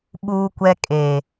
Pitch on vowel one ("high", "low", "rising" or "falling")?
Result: high